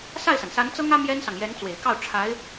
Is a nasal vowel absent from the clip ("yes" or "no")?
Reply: yes